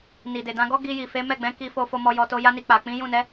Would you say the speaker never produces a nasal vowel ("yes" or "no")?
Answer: no